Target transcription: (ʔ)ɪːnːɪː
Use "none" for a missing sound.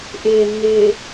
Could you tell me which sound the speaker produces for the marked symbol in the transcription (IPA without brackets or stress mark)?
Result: ʔ